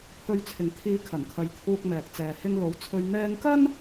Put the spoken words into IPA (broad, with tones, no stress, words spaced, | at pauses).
pʰɵ˧ɥt͡sʰɪ˨ŋ t̪ʰiː˧kʰɐ˨˩nkʰɐ˨j t̪ʰuː˧k̚mɛː˨k̚t͡sɛː˨ hɪ˧ŋ lo˨˧wt͡sʰɵ˧ɥ n̪ɛː˧ŋkɐ˥n